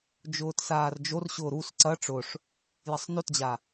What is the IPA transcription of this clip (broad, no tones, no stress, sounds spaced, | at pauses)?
d͡ʒ ʊː t s aː r d͡ʒ o r ɕ ʊː ɾ u s ǀ ɐ ʈ͡ʂ ʊ ʂ | j ɐ sˤ n o t d͡ʑ a